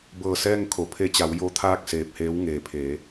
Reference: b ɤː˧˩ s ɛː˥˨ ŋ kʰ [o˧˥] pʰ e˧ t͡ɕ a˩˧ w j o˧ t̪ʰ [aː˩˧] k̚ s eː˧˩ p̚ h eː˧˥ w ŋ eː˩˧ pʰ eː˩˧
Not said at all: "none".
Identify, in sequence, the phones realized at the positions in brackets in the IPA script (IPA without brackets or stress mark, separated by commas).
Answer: o˩˧, aː˥˨